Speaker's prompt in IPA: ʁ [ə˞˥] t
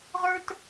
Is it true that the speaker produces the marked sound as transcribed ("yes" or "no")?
yes